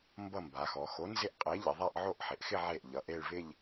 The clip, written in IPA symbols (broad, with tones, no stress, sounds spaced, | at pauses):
m b ʌ˥˧ m b a˩˧ x ɔ˩˧ x o˨˥ n z ɪ˥˧ ʔ qʼ e˨˥ ʎ ɪ˩˧ ðˤ a˥˧ ʔ ʕ o˥˧ ʔ ħ ɪ˩˧ ʔ x ɪ˥˧ ʕ e˥˩ ʔ ʎ ʌ˩˧ ʔ e˥˧ ɭ v ɪ˥˧ ʎ